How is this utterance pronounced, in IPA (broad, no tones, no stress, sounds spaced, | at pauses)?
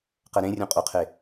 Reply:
q ɛ ɾ ẽ rʲ õ qʼ o qʰ e